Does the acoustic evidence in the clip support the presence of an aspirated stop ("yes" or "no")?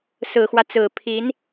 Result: yes